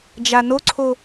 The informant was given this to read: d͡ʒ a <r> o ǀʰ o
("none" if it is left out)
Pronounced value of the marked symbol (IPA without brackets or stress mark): n